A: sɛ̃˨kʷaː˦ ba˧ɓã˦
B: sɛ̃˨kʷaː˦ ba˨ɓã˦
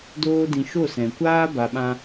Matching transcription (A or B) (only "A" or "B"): A